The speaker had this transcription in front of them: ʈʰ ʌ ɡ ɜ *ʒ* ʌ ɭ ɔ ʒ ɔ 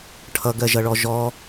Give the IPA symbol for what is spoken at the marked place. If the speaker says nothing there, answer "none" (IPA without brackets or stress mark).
ʒ